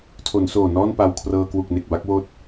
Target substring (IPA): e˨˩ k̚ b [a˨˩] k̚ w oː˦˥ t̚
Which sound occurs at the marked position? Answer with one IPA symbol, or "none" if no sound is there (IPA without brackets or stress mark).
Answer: a˥˩